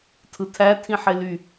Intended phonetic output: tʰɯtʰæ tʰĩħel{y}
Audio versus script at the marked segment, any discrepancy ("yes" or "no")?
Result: no